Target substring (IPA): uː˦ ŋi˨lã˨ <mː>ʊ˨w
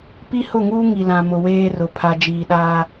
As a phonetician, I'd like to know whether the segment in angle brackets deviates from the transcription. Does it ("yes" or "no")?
yes